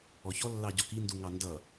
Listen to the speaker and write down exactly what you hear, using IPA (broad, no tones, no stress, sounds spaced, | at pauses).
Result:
ɔ ç ɔ lː ɑ ɟ ɔ k i n d u ŋ ɑ n d ʌ